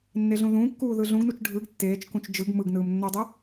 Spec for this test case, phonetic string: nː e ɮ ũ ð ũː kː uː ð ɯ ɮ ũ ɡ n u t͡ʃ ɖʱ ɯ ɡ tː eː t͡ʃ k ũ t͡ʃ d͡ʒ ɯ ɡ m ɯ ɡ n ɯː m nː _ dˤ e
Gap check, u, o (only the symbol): o